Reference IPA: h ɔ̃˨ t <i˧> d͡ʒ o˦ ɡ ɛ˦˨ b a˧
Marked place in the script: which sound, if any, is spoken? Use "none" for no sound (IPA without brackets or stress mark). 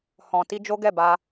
i˧